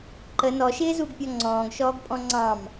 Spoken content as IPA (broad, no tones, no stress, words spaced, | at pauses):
ǃə nɔʃɪːzuɡpʲɔ ŋ͡ǀɔ̃ːɡʃɔːɡpʼɔ̃ ŋ͡ǀɑ̃m